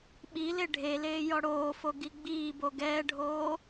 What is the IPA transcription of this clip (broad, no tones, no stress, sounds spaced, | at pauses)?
ɓ i l e ɖʱ e l eː j ɔ ɽ oː f o ɡ i ɡ͡b iː b o ɡ ɛː ɖʱ oː